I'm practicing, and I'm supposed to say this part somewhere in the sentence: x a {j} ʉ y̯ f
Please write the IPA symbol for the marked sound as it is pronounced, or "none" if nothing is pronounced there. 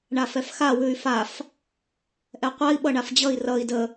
w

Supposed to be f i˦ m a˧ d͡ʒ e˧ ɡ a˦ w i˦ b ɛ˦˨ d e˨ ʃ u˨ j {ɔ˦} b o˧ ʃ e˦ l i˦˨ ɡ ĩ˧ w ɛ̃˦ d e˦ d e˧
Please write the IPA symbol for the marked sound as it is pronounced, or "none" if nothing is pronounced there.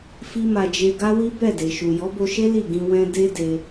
ɔ˨˦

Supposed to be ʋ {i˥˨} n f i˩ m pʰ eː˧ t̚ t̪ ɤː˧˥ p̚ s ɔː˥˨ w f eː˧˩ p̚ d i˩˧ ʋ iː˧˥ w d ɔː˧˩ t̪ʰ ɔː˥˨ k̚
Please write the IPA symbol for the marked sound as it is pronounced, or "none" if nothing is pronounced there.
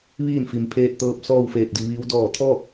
iː˥˨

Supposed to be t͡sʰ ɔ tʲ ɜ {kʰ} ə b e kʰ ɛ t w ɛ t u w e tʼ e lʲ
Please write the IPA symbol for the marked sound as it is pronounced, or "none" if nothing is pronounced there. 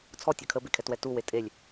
kʰ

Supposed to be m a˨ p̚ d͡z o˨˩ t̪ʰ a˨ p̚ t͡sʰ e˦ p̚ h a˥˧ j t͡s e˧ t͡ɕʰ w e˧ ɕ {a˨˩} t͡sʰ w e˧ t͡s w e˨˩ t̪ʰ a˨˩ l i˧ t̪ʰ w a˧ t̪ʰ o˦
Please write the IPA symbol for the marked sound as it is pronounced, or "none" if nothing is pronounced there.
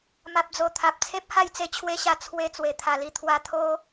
a˧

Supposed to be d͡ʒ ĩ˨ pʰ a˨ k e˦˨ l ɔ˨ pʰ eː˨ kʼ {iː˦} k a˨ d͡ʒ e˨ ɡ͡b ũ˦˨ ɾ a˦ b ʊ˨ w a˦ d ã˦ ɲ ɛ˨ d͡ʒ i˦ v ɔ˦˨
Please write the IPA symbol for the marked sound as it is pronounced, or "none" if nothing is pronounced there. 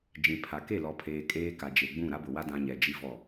eː˦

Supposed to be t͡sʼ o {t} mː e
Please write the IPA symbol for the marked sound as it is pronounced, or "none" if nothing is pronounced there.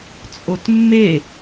t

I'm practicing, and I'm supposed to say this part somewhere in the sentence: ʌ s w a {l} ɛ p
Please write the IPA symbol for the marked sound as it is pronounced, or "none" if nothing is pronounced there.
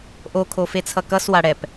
ɽ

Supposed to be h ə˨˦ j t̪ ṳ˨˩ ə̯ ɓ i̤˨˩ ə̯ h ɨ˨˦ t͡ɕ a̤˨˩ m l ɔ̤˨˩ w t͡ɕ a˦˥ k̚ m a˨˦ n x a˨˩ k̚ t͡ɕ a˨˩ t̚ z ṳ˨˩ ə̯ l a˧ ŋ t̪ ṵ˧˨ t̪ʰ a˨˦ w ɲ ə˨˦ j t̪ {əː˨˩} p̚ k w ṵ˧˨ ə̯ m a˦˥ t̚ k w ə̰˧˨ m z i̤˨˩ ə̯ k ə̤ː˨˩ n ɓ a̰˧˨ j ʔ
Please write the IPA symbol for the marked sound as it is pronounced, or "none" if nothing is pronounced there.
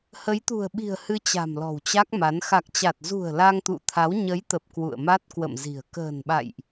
ə˨˩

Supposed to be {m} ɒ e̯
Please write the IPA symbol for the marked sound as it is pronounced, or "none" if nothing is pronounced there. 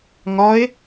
ŋ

